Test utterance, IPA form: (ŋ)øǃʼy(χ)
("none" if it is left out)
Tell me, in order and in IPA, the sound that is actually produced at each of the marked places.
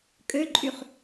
kʼ, χ

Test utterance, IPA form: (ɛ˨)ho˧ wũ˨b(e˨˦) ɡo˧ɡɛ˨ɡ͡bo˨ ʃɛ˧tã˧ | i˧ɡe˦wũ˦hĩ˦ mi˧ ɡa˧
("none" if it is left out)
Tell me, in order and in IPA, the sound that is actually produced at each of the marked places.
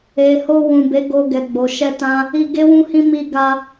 e˨, e˨˦

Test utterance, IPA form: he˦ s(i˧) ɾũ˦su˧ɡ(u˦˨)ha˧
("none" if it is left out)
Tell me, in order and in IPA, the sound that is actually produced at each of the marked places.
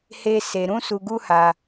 e˧, u˦

